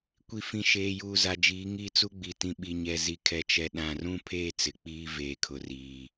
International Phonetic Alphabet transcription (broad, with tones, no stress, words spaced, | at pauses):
kʷi˨fĩ˨ʃeː˨juː˨ za˨d͡ʒiː˨˦ ŋiː˦t͡su˦ ɡ͡bi˨tĩ˨ɓi˨ ɲɛ˨zi˨kʰɛ˨t͡ʃɛ˨ ɗã˨rũ˦ pʰeː˦˨ t͡sɪ˨k͡piː˦ veː˨ kʰʊ˨riː˨